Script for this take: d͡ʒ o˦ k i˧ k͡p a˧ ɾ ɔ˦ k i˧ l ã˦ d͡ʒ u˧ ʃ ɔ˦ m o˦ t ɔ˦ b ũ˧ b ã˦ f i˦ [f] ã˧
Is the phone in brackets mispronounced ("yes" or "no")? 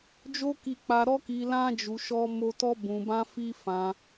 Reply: no